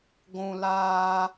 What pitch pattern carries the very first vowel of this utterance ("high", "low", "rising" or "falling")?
low